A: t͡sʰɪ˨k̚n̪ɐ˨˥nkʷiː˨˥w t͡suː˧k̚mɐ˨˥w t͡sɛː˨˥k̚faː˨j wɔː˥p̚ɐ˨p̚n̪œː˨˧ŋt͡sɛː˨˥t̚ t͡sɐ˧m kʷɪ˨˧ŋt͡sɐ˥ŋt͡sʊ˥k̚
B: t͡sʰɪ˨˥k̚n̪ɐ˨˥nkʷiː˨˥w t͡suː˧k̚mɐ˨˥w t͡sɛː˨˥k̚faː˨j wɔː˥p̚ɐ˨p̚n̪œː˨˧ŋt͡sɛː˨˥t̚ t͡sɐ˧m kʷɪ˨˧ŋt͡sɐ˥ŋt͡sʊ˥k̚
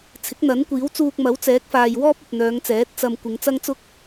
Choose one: B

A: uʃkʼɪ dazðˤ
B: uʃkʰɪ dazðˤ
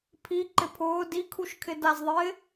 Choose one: B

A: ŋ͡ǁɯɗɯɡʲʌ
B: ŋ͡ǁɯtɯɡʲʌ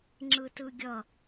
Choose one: B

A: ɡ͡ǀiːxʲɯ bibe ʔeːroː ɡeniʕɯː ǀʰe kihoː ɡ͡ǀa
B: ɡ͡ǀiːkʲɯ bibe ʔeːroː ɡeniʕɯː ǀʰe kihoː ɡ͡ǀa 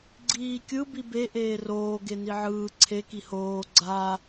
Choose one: B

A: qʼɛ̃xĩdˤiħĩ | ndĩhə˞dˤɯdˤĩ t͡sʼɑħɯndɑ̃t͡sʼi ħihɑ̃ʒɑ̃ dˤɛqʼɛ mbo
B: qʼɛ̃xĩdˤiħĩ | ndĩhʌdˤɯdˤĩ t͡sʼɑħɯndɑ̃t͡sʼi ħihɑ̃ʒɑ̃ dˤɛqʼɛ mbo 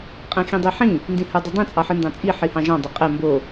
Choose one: A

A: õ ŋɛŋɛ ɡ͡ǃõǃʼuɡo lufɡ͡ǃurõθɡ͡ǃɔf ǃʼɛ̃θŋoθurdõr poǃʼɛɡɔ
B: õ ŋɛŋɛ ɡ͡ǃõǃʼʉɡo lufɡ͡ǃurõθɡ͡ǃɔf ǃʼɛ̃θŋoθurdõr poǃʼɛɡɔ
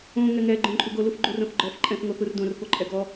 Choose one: A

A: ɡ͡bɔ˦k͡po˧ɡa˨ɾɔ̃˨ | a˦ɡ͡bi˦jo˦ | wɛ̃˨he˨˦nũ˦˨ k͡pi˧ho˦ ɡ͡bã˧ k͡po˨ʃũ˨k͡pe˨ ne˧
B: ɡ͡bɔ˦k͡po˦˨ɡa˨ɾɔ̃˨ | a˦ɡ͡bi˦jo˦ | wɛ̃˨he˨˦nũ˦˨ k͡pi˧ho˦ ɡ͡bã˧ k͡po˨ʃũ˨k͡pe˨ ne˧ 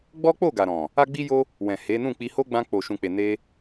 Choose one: B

